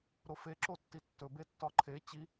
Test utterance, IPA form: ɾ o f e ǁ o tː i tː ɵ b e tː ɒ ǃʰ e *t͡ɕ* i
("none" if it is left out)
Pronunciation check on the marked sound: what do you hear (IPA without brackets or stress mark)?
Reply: t͡ɕ